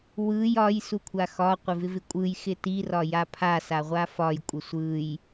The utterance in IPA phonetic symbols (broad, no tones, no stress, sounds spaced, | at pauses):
w ɯ j ɒ j s u kʷʰ a x ɒ qʷ ɪ v ɪ v ɪ kʷʼ ɯ j x ɪ t i r ɒ j a pʰ a s a ʁʷ a f ɒ j kʷʼ ɪ sʷ ɯ j